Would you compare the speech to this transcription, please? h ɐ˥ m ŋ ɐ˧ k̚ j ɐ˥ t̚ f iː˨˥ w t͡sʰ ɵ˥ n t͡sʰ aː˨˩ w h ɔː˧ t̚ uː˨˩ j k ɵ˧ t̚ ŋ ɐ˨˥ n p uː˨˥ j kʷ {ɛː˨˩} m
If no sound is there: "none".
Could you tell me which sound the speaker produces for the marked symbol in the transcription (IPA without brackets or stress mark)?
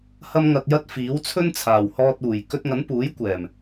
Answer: ɛː˨˩